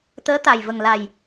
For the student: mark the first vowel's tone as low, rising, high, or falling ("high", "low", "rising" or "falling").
rising